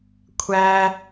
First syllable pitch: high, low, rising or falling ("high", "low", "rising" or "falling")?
high